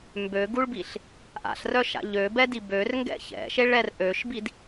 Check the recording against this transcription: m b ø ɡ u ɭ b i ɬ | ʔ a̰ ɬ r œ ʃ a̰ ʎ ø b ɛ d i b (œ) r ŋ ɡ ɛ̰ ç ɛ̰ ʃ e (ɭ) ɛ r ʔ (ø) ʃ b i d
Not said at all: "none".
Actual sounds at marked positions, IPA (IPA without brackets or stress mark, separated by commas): ø, ɭ, ø